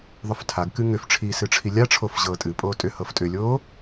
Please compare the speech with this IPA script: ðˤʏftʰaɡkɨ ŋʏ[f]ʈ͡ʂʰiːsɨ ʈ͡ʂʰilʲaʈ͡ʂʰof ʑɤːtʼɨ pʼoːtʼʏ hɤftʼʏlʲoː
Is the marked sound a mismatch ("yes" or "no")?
no